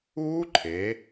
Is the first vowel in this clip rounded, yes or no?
yes